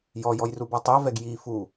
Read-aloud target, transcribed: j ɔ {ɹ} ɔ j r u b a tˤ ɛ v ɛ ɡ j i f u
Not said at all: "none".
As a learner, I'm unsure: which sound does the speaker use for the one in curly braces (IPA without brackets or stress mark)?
j